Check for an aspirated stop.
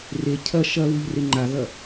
present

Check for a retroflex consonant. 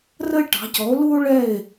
present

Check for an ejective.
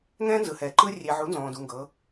absent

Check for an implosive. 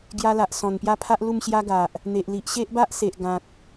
absent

